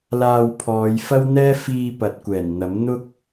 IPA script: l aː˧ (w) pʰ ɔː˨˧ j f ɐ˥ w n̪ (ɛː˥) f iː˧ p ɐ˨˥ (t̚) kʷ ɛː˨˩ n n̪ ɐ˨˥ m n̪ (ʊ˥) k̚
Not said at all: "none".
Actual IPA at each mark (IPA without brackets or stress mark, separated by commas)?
w, ɛː˥, t̚, ʊ˥